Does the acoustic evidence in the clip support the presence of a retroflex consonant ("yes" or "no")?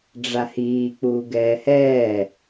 yes